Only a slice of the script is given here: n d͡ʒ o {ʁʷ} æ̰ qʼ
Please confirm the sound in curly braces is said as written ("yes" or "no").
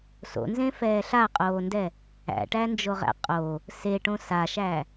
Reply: no